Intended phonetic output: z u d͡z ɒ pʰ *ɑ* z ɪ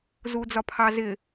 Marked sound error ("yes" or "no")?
no